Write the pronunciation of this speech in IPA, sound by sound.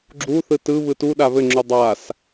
ɡ͡ǁ u θ ɯ t ɯ β ɯ t u ɗ a β ɘ ŋ͡ǁ u dˤ a s

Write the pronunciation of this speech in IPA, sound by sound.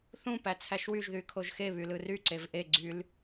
θ ũ p æ t͡sʰ æ ʃ w y ʒ ð y kʰ o ʒ x e β y l ɯ r y ǀ e v ʔ e ɡ͡ǀ y l

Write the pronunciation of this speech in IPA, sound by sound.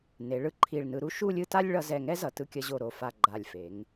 n e˩˧ ɭ ɯ˧ ǃʰ i˧˩ ɭ n ɯ˧ ɾ u˥ ʃ u˥˧ lʲ ɯ˥˧ t a˥ lʲ ɭ ʌ˧ z ɛ˧˩ ŋ ɛ˥ z ʌ˩˧ t ɯ˧˩ kʲ ʌ˧ ʑ o˧˩ ɾ o˧˩ f a˧˩ ɡ͡ǃ a˧˩ lʲ f e˩˧ ŋ

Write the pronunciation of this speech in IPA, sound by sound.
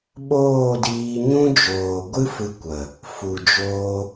ɓ oː˦˨ d iː˧ ɲ ũ˦ d͡ʒ oː˨ ɡʷ ɨ˦ f ɨ˧ kʷ ə˨ | f u˨ d͡ʒ oː˧

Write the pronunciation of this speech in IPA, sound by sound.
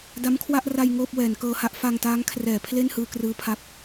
d a˦˥ m kʰ w a˥˩ ʔ r a˧ j ŋ oː˥˩ p̚ w ɛː˩˦ n k ɤː˧ h a˦˥ ʔ f a˧ ŋ t aː˦˥ ŋ kʰ r ɛː˩˦ pʰ l e˥˩ n h ɯː˧ k r ɯː˧ pʰ a˦˥ p̚

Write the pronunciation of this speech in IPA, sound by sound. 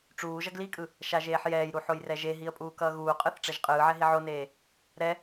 ʈ͡ʂ uː ʒ ʌ ɡ l i kʼ ɯ | ʃ a ʒ eː ħ j ɛː j ɾ u ħ o j r ɛ ʒ e ɦ i ə̯ pʼ uː k ʌː ɣ uː qʼ ɯ θ ʈ͡ʂ ɛ ʒ qʼ ɯː ʕ ɛ ɦ i ʕ o n eː | ɾ ɛ

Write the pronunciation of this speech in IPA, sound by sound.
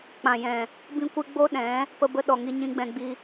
k͡p ã˨ j ɛ̃˨ | b ĩ˦ kʷ ɨ˦ ɡ͡b o˦ ɗ ɛ̃˨˦ | p ə˦ b ə˦ ɗ ɔ˨ ŋ i˦ ɲ ĩ˦ ɡ͡b ɛ̃˧ ɡ͡b i˦

